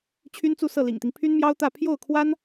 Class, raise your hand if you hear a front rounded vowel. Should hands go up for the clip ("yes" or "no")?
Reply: yes